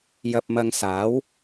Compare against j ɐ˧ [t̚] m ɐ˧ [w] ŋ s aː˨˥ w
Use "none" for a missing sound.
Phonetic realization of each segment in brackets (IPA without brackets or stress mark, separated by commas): p̚, none